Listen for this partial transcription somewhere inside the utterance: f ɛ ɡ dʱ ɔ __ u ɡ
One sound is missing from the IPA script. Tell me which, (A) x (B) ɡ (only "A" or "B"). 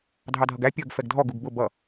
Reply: B